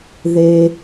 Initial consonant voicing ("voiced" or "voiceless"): voiced